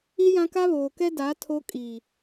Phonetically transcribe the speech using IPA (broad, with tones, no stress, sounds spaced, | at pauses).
i˦ j ã˦ k a˦ β oː˨ k ɛ˦ d a˨˦ tʰ o˦ kʼ iː˨